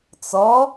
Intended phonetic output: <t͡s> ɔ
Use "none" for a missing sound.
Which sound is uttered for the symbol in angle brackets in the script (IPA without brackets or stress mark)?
t͡s